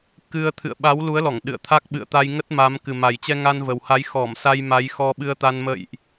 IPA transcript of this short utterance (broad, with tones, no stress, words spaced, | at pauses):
kɨ˧ə̯ t̪ʰɨ̰˧˨ə̯ ɓa˨˦wlu˨˦ə̯lɔ˧˩ŋ ɗɨ̰˧˨ə̯t̪ʰa˦˥k̚ ɓɨ̰˧˨ə̯t̪a˧j ŋə˦˥t̚ma˨˦m kɨ˨˩ma˨˩jt͡ɕɛ˧ ŋa˧nvə˨˩wha˨˦j xɔ˧˩msa˧j ma˨˦jxɔ˧ɓɨ˧ə̯t̪a˧n mə̰˧˨jʔ